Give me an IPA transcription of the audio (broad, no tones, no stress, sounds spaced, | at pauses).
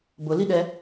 b ʊ l i ɗ ɛ